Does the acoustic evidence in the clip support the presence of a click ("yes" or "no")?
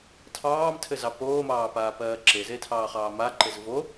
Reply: yes